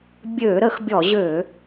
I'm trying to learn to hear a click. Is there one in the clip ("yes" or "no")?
no